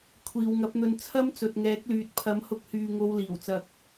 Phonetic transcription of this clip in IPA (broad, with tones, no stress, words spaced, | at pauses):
kʷʰiː˨wŋɐ˨˥p̚n̪ɵ˧n t͡sʰɐ˥mt͡sɵ˨t̚ŋɛː˨˥k̚lyː˨t̚ pʰɐ˨˥mhʊ˧k̚hyː˨ ŋo˧wliː˨˩wt͡sɐ˨k̚